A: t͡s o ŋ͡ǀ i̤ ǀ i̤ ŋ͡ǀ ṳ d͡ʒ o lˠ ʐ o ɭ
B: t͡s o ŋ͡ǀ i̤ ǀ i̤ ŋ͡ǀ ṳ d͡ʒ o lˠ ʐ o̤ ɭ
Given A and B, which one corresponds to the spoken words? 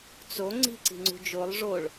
A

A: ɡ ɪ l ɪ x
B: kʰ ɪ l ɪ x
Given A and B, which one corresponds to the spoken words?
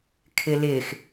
B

